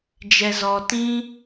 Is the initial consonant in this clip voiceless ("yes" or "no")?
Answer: no